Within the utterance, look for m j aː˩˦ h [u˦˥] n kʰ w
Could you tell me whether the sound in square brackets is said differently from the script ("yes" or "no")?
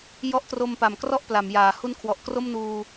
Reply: no